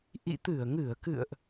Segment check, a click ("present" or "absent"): absent